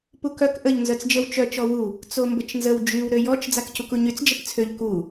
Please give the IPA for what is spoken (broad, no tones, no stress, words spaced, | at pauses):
pukœk ʔəʎ nzœt͡sd͡ʒəw t͡ʃœ t͡ʃɔwu | t͡sombət͡ʃnzəw d͡ʒyw ɾøjɔt͡ʃ d͡zakcukuɲyt͡s d͡ʒəpt͡sʰøʎ ku